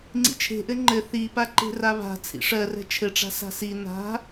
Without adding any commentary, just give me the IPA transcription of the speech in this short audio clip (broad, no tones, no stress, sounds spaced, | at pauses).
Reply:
ŋ͡ǀ ḭ t͡ʃʰ e̤ ʔ ɘ ŋ͡ǃ ɘ θ i p a ǃ e̤ r a β a̤ t͡sʰ ḭ ʂ ɜ r ɛ̤ t͡ʃʰ ɘ ʈ͡ʂ a̤ s a̤ s i n a̤